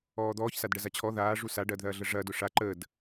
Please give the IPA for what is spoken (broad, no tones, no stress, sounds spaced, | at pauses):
ɔː d̪ ɔː ç s a d ɖ ɐ z a t͡ɕʰ ɔ ð aː ʐ u s a ɖ ɐː d ð ɐː ɮ ə ʐ ɐː d ʊ ʂ a ǃ əː d